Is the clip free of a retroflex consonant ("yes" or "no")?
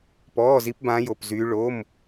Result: no